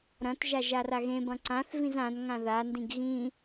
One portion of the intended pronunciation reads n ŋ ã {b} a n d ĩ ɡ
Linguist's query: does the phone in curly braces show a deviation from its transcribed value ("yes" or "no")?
yes